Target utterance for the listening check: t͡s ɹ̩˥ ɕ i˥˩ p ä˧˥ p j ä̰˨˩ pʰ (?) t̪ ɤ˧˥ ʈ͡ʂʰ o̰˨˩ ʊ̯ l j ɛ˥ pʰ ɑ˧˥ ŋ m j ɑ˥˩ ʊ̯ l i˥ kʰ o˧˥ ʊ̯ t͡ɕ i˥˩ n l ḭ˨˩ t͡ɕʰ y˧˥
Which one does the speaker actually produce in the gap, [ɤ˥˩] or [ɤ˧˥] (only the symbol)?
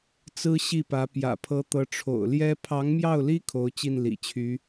ɤ˧˥